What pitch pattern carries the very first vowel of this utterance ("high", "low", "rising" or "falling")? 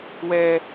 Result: high